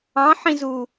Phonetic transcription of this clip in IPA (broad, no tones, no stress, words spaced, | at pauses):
ɑ̃ħĩzu